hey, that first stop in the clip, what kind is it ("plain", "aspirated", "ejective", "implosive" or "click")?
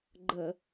click